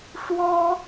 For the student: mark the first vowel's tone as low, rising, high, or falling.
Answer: high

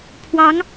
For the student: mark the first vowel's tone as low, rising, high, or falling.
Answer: rising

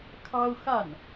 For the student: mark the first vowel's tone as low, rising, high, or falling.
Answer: high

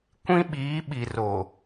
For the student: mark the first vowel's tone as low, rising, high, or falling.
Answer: high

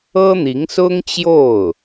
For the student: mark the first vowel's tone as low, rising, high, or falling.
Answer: high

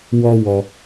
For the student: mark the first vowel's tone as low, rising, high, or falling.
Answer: high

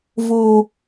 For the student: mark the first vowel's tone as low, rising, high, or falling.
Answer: high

